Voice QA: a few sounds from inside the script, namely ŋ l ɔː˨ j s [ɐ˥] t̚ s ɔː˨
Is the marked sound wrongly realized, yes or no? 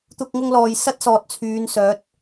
no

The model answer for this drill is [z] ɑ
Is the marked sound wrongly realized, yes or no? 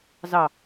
no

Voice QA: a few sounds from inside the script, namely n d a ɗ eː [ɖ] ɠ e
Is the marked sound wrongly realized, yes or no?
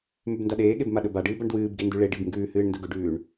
yes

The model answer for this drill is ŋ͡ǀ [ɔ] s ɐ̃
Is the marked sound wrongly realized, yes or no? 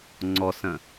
no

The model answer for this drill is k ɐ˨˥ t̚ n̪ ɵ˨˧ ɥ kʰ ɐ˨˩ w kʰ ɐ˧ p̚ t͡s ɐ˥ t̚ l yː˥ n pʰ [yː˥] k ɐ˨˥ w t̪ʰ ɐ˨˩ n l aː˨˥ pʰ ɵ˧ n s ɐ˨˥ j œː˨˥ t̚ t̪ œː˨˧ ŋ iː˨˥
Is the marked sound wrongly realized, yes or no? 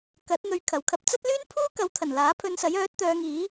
yes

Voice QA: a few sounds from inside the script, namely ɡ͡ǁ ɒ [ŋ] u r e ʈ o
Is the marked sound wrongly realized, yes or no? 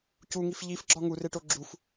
no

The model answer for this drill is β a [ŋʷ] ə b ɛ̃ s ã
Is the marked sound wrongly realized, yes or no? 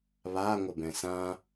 no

